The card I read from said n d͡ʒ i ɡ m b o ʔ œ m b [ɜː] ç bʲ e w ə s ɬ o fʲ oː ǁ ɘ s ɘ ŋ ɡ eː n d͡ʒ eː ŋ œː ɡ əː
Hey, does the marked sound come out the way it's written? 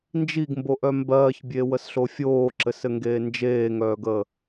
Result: yes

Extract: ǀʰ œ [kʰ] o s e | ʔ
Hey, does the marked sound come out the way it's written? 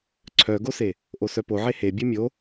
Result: no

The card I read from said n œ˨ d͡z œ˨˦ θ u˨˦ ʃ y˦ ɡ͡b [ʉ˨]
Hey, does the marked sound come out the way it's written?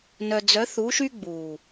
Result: no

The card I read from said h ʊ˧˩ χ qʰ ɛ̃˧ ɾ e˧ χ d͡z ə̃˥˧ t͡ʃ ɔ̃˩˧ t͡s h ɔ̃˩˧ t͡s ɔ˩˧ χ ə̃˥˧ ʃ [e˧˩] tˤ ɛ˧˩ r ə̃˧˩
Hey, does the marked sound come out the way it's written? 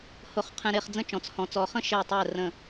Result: yes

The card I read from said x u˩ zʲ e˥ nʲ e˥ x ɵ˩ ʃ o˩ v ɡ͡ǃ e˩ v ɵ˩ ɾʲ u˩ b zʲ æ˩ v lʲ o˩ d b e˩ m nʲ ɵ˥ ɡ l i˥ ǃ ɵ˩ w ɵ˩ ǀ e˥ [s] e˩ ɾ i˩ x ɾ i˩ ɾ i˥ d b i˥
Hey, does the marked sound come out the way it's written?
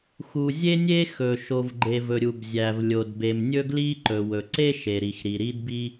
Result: no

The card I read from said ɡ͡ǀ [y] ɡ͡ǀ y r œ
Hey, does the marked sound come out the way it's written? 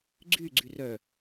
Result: yes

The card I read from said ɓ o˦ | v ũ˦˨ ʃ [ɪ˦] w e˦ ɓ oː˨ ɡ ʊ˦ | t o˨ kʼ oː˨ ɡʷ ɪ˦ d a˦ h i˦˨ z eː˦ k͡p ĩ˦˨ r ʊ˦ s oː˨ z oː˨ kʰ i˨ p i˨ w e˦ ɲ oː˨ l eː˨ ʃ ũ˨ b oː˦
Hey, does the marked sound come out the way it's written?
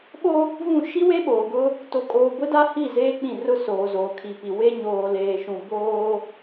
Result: no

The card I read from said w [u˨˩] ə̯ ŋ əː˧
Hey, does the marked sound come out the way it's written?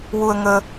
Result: no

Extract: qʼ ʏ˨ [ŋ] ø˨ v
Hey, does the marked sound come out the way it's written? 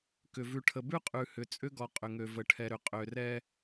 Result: yes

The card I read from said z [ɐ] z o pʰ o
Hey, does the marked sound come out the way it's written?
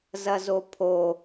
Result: yes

